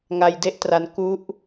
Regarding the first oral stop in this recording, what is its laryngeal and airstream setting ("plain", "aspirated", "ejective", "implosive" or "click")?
plain